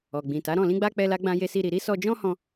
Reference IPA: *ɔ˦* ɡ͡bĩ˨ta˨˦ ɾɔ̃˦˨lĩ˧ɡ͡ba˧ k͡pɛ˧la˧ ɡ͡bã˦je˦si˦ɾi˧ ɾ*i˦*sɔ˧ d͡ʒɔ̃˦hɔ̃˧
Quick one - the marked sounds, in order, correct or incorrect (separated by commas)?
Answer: incorrect, correct